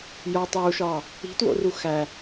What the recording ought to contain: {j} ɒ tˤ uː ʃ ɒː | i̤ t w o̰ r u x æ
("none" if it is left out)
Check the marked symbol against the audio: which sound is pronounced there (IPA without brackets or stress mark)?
j